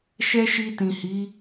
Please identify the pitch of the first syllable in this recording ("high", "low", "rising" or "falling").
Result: high